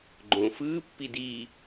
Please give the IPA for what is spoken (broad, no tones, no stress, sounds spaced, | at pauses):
ɡ͡ǃ õː f ɯː pː i d iː